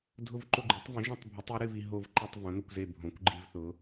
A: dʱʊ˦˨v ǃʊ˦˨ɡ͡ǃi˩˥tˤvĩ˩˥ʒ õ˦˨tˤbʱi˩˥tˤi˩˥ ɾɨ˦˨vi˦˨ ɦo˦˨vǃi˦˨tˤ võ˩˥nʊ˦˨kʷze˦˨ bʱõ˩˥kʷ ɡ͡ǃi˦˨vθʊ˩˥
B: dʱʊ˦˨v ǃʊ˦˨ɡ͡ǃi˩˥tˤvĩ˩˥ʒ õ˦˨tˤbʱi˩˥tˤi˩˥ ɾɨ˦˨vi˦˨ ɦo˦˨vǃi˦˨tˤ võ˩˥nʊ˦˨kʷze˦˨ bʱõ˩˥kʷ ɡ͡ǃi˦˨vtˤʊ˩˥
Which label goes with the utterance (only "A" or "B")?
A